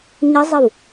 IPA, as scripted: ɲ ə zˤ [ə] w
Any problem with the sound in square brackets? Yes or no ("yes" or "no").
no